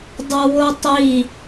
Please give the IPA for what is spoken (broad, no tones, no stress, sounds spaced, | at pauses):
dˤ o w o tˤ i